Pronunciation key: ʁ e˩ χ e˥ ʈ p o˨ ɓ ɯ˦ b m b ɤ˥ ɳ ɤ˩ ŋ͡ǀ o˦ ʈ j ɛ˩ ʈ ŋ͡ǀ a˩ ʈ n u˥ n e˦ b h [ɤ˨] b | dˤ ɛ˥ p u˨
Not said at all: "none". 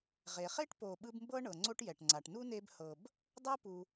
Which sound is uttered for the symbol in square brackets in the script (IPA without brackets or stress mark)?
ɤ˨